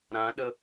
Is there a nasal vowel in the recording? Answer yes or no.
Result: yes